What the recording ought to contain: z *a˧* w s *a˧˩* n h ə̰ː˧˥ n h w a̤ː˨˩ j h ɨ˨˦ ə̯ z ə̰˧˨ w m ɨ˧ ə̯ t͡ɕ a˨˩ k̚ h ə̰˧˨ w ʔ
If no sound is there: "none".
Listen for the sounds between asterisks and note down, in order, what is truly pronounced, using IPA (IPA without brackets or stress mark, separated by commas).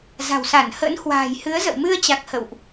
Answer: a̤˨˩, a˧˩